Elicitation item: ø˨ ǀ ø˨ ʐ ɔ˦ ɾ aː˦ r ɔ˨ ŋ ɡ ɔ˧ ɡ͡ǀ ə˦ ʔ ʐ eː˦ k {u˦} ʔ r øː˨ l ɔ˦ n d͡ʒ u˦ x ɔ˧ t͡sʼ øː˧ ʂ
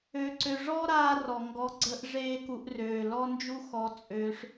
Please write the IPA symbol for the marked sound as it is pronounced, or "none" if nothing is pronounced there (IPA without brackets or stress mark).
u˧